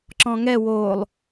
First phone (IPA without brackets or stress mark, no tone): ǁ